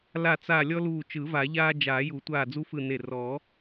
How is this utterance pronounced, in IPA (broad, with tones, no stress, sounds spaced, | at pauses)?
l a˧˩ t͡s a˧˩ lʲ ɔ˦ l uː˧˩ t͡ʃ ɯ˨˩˦ v a˨˩˦ ʎ aː˦ d͡ʒ aː˨˩˦ j u˨˩˦ tʷ aː˧˩ d͡z u˦ f ɯ˧˩ n e˧˩ r ɔ˨˩˦